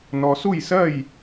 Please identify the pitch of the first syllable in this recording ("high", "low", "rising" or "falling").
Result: low